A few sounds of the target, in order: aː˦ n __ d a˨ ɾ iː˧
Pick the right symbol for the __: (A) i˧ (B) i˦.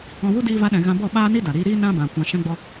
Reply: B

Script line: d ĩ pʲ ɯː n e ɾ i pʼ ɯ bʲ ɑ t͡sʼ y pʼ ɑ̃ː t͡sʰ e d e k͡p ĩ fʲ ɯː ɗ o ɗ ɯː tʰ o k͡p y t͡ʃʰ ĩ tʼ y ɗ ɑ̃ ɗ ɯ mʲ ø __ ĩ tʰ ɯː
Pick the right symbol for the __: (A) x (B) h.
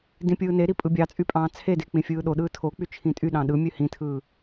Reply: B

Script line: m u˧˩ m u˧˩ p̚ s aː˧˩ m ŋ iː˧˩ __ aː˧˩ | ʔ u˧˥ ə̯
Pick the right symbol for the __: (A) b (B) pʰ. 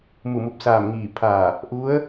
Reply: B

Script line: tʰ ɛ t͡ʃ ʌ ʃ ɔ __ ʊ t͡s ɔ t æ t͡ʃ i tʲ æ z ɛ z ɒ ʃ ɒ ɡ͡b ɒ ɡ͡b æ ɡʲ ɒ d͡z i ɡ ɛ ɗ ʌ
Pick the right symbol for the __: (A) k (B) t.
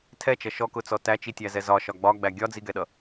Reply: A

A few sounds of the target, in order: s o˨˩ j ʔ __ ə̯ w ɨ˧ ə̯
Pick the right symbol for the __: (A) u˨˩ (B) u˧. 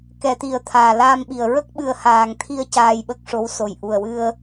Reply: A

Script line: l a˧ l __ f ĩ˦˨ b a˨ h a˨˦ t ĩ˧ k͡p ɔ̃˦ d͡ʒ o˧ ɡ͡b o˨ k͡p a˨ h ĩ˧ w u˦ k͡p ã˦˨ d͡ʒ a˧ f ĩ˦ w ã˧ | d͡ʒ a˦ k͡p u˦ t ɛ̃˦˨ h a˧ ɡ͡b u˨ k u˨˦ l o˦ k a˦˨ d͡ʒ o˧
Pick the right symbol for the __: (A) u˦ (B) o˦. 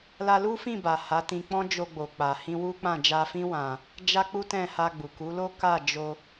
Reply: A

